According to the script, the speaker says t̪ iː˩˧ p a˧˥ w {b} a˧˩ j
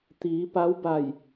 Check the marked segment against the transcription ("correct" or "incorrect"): correct